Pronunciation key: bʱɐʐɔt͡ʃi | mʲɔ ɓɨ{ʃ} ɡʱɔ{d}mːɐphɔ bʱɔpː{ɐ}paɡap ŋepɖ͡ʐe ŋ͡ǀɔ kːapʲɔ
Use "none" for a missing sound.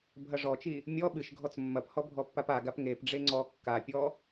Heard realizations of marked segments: ʃ, t͡s, a

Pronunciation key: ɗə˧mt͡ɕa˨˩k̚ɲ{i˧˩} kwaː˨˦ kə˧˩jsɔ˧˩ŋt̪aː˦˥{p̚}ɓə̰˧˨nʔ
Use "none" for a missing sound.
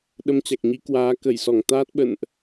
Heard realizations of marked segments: i˨˦, t̚

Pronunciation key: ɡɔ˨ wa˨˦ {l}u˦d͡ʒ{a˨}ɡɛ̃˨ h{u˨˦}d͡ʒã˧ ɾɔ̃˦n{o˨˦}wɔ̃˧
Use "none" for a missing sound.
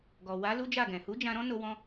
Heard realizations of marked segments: l, a˦˨, u˨˦, o˧

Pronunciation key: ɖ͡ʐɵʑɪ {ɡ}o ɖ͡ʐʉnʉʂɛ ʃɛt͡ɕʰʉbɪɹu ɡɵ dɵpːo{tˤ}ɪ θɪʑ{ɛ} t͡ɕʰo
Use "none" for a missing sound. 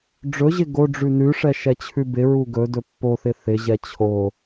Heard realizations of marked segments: ɡ, θ, ɛ

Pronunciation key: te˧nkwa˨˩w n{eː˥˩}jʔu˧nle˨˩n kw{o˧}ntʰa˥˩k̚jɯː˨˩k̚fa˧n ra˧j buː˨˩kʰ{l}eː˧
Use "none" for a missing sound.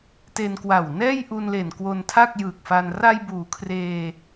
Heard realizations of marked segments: ɛː˥˩, o˧, r

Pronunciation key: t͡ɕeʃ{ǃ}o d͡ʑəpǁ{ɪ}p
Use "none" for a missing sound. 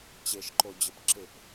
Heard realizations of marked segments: ǃ, ɪ

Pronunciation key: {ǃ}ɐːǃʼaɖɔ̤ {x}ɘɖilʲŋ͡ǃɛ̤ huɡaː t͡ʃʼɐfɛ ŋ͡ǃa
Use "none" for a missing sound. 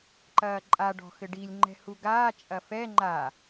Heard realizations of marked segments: ǃ, x

